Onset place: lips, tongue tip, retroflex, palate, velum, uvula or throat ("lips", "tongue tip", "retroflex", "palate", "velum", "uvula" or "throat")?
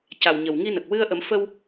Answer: palate